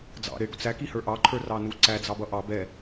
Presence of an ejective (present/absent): absent